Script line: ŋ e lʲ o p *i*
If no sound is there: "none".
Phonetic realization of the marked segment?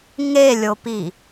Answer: i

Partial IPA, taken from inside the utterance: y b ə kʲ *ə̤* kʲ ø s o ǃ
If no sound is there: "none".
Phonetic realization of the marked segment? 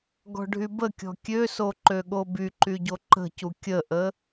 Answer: ɔ̤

